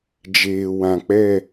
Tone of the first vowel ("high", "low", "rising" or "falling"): low